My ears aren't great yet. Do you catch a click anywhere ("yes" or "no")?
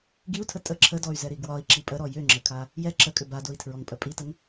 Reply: yes